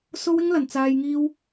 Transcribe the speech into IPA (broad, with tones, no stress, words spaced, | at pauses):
so˧wɪ˧ŋ lɐ˨˩nt͡saː˨j ŋiː˧w